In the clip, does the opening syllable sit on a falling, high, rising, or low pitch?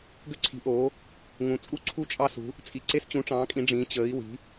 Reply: high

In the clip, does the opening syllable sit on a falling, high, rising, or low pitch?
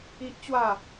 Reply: high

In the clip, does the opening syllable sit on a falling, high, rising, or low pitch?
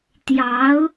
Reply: rising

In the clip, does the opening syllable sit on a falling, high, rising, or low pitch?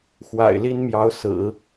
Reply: low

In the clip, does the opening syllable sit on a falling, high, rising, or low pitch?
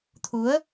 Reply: rising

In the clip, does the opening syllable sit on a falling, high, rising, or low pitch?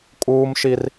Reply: high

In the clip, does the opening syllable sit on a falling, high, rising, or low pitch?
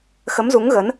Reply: rising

